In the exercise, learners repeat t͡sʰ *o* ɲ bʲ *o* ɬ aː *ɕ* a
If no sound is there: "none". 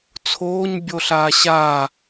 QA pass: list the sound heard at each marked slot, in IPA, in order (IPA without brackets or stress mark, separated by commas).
oː, o, ɕ